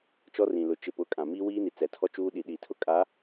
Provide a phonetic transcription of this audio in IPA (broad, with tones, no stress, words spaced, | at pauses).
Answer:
t͡ʃɔ˦rĩ˨ lʊ˨t͡ʃɪ˨pʊ˨˦ kʼã˨miː˦wiː˦ni˨ t͡sɛ˨tʰɔ˦t͡ʃuː˦ ɗi˨ɗi˨ tʰʊ˦kʼa˨˦